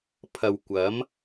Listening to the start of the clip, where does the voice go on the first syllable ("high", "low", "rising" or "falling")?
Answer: low